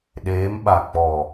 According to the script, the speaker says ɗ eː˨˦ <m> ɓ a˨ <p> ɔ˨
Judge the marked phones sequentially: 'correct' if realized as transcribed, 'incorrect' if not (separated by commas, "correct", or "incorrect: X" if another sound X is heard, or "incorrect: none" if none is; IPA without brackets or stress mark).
correct, incorrect: k͡p